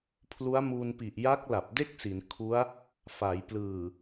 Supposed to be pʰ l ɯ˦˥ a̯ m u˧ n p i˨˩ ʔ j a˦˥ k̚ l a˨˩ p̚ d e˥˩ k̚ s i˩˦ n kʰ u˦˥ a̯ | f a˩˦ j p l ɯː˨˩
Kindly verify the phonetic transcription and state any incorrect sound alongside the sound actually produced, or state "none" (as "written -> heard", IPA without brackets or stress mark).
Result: ɯ˦˥ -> u˦˥